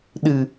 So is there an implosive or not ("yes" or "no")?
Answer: yes